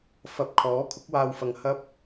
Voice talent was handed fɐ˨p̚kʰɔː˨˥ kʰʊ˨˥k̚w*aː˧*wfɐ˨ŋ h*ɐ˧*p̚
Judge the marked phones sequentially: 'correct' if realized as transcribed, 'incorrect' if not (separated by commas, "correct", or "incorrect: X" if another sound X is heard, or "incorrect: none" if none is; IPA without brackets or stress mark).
correct, incorrect: ɐ˥